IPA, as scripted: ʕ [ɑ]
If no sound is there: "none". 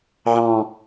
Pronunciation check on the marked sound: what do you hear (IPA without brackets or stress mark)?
ɑ̃